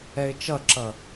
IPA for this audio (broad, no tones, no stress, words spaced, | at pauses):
ɛɪ̯t͡ʃʌǁʌ